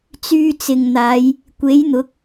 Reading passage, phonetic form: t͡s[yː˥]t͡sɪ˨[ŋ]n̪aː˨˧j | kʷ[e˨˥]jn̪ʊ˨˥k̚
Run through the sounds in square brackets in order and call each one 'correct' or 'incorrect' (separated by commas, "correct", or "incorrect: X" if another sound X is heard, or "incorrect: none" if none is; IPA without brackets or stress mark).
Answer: incorrect: yː˧, correct, correct